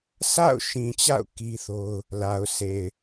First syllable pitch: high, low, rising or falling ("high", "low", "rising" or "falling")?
falling